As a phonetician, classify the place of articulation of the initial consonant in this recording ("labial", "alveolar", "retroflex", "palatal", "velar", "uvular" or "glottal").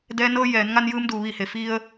alveolar